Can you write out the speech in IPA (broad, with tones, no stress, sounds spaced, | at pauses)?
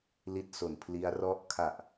l i˦˥ t̚ s o˨˩ n pʰ l i˦˥ a̯ r ɔ˥˩ ʔ kʰ a˨˩ ʔ